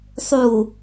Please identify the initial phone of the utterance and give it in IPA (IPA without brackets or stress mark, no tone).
sˤ